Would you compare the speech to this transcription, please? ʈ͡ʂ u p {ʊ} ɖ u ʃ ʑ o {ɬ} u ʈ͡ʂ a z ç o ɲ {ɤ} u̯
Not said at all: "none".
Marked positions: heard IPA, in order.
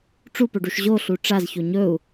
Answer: ɵ, ɬ, ɵ

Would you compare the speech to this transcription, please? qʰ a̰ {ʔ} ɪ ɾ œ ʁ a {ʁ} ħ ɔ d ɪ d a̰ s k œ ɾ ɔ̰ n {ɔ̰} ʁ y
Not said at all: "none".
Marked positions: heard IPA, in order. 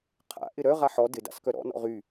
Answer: ʔ, none, ɔ̰

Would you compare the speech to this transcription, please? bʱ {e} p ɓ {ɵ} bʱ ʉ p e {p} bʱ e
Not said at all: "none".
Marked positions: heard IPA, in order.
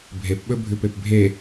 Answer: e, ɵ, p

